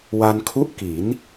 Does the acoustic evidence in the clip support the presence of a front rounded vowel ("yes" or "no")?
no